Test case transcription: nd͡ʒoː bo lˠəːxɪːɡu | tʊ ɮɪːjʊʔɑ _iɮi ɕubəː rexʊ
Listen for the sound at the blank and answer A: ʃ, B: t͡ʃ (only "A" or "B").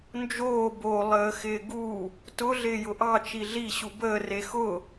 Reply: B